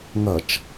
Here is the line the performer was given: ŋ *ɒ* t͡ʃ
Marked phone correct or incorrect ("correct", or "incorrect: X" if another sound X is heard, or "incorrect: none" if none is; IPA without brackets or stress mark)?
incorrect: ʌ